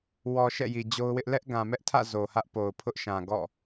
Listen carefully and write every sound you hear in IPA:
w ɔ˨ ʃ ɛ̰˦˨ j i˨ d͡ʑ o˦ ʊ̯ w ɪ˦ ʔ l ɛ˦ ʔ ɡ ã˨ m ɛ˦ ʔ tʰ ä̰˦˨ z o˨ h ä˦ ʔ p o˨ ʊ̯ pʰ ʊ˦ ʔ ʃ ã˨ ɡ ɔ̰˦˨

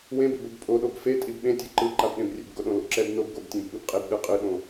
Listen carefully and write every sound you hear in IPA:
w ẽ b ḛ b o b pʼ o ɗ o b f e tʼ i b ɓ ẽ tʲ ɛ ǃ ɯ ǃ a b ɗ ẽ b rʲ ḛ b ɡ o ɗ õ l o̰ ǁ ɛ b n o b ɡ o b tʲ ẽ b ɓ ɯ b qʼ e b ɗ ɯ qʼ ɯ ɗ õ

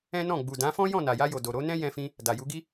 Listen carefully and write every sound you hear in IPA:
ɛ̃˦ n ɔ̃˦˨ ɡ͡b u˨ d ã˨˦ f ɔ̃˦ j ɔ̃˦˨ n a˨ j a˧ j o˨ d o˨ ɾ o˨˦ n ɛ̃˦ j ɛ̃˧ f ĩ˧ | d a˨ j u˨˦ ɡ i˦

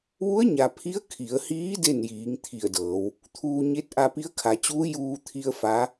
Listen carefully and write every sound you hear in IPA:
ʋ u˧˥ ə̯ ɲ a˩ pʰ i˧˥ ə̯ kʰ i˩˧ ə̯ h iː˧˥ d e˥˨ n j iː˩˧ ŋ t̪ʰ i˧˩ ə̯ d ɤː˩˧ w | t̪ʰ uː˧ ɲ e˧˥ t̚ ʔ a˧ p i˧˥ ə̯ kʰ a˩˧ t͡ɕ uː˧˥ j uː˧ t̪ʰ i˧ ə̯ f a˧˥

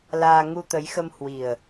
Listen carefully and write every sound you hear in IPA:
l aː˧ ŋ u˧ t̪ ə˨˦ j x ə˧ m h w i˨˩ ə̯

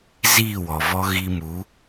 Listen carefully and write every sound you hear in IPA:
z i˦˨ w ɔ˨ v ɔ˦ ɣ i˧ m u˨˦

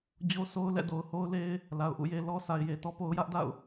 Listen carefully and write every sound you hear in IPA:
d͡ʑ o˦ s o˦ ʊ̯ l ɛ̰˦˨ d o˨ ʊ̯ h o˦ ʊ̯ l e˦ ɪ̯ | l a˨ ʊ̯ ʔ ṵ˦˨ j e˦ l ɔ˦ sʰ a˨ ɪ̯ j e˨ t ɔ˦ p o˦ ʊ̯ j ä˦ ʔ d a̰˦˨ ʊ̯

